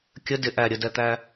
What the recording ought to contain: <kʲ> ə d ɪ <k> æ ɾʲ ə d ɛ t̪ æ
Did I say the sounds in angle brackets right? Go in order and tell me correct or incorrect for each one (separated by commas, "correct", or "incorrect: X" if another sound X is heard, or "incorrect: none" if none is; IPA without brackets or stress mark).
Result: correct, incorrect: ʔ